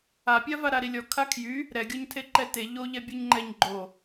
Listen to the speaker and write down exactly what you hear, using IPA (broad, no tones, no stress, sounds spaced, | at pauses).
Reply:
a pʲ a v a ɾ a ɾ i lʲ ɔ kʰ a kʰ j y | ɾ ɛ ɡʲ ɔ ɲ tʰ e ǃ ɛ t e ʎ o ʎ ɛ bʲ o ɲ ŋ͡ǃ ɛ ɲ ɡ͡ǃ o